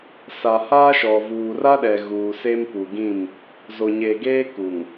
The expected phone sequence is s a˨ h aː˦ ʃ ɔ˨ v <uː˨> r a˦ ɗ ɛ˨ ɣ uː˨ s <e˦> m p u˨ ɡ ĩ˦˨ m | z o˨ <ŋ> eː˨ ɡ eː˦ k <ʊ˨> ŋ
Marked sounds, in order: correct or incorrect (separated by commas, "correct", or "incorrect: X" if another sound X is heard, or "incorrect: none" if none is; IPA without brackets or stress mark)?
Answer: correct, correct, incorrect: ɲ, incorrect: u˨